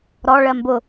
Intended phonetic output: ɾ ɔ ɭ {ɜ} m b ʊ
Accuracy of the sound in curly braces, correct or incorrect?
correct